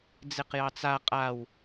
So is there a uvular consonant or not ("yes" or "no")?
yes